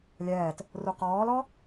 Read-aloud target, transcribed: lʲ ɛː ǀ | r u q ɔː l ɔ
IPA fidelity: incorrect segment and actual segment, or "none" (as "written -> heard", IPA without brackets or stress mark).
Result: ǀ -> t